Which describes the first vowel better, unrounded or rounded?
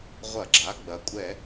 unrounded